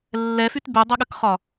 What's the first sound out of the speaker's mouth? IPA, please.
lː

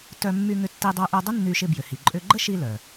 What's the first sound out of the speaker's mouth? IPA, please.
t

